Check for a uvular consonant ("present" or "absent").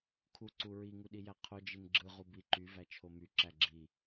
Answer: present